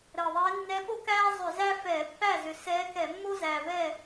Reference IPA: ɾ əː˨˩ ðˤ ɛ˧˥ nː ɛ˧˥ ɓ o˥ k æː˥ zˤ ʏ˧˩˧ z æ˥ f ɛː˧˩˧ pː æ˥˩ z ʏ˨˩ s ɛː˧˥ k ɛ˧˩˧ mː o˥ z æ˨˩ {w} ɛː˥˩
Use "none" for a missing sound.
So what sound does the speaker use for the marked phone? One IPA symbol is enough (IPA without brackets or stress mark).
v